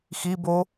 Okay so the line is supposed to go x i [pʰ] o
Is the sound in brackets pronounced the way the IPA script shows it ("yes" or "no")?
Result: no